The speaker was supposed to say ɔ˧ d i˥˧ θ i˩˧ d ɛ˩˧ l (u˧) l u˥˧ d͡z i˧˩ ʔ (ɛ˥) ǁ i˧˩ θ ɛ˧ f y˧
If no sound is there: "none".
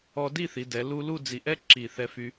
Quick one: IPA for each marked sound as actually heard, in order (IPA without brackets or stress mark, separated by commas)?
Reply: u˧, ɛ˥